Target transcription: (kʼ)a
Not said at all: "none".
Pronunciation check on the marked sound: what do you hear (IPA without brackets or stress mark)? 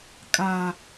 kʼ